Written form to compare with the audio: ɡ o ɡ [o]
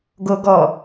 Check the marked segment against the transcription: incorrect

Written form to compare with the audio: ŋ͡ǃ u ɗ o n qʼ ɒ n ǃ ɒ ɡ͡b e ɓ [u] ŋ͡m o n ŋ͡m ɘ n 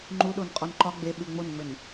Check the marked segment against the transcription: incorrect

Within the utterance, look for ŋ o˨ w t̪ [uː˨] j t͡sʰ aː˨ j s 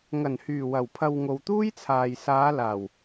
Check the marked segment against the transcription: incorrect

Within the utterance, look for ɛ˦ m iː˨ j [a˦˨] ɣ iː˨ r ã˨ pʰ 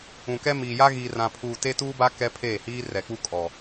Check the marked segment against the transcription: incorrect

